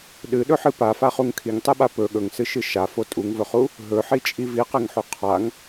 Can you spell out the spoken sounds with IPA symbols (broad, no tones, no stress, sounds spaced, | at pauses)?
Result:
ɗ ɨ ɗ ɵ ħ ɨ p a f a χ u ŋ kʰ i ŋ tˤ e ɓ a p ɵ ɠ ɵ ŋ s ɨ ʃ ɨ ʃ a f o tʼ u ŋ v ɵ χ u | ɦ ɵ ħ i t͡ʃʼ i v i q e ŋ ħ u qʰ a ŋ